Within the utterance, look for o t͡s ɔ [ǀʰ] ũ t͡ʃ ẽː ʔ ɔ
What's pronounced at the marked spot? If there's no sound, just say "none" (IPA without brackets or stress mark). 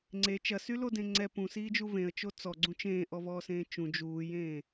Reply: ɡ͡ǀ